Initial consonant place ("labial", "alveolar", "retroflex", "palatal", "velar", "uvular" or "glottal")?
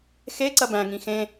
velar